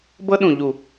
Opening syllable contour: high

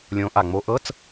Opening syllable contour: rising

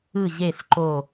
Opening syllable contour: falling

